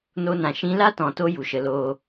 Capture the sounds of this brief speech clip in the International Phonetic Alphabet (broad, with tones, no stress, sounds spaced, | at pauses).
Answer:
n o˧ n ã˨ ʃ ĩ˧ l a˦ t ɔ̃˨ t o˧ j u˨ ʃ ə˧ l oː˦